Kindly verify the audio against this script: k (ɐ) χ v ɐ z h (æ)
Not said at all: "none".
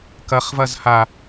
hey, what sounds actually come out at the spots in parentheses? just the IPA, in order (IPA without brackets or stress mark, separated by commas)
ɐ, a